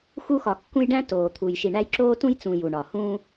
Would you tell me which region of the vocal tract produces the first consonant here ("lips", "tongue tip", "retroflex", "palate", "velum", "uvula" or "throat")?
velum